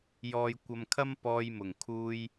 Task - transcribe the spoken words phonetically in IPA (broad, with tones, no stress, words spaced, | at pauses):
jɔː˧jkʷɐ˧mkʰɐ˥m pɔː˧jmʊ˨˩ŋ kʰuː˧j